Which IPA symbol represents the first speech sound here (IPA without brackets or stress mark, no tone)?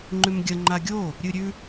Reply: ŋ͡ǃ